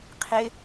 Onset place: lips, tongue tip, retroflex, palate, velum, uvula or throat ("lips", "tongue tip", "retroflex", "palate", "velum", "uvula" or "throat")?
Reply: uvula